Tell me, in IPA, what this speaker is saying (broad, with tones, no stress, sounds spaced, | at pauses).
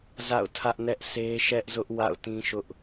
z a̰˦˨ ʊ̯ tʰ ä˦ ʔ n ɛ˦ ʔ s e˦ ʃ ɛ˦ ʔ z ʊ˦ ʔ w a̰˦˨ ʊ̯ t ĩ˦ ʃ ʊ˦ ʔ